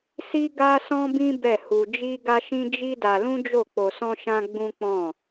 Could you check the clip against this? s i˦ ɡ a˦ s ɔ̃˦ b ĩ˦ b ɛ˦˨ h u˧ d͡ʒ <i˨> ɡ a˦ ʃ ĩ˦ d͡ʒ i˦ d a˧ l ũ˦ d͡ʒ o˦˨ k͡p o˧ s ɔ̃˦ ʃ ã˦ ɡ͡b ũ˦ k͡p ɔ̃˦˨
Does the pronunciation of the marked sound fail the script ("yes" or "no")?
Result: yes